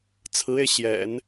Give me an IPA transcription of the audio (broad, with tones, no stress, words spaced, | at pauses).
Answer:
t͡sʰɹ̩˧˥e˧ɪ̯ ɕjɛ̰˨˩˦n